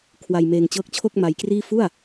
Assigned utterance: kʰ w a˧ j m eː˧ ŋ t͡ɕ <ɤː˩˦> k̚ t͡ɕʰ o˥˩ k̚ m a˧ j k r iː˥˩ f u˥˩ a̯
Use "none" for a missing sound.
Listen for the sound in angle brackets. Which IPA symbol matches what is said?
ɤː˦˥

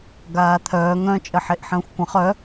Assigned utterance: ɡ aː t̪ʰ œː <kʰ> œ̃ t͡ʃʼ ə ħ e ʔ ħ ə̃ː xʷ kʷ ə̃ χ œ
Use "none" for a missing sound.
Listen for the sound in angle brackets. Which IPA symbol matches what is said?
ŋ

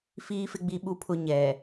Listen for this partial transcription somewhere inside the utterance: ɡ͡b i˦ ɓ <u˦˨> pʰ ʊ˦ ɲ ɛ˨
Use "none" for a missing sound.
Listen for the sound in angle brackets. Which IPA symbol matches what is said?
u˦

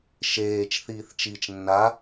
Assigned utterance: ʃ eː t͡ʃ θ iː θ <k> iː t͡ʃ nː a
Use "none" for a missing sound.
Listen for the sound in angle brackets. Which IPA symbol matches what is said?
t͡ʃ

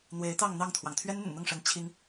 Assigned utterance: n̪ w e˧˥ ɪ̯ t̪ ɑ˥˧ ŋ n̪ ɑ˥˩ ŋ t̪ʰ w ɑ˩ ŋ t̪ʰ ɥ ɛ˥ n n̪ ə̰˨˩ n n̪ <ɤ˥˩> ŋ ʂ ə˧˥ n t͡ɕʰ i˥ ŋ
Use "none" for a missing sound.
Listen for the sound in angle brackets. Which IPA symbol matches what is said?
ɤ˥˩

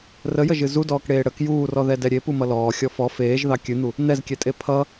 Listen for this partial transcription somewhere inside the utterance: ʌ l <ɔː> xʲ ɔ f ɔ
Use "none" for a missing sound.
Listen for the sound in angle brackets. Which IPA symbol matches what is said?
ɔː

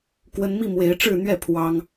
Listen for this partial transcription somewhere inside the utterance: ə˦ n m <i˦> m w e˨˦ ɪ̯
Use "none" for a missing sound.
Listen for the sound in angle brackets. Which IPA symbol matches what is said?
i˥˨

